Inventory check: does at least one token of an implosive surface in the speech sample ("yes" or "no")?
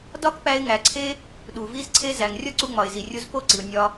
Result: yes